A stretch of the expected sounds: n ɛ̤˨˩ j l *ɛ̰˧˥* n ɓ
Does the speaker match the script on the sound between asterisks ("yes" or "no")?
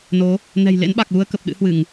no